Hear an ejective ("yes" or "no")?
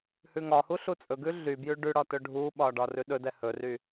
yes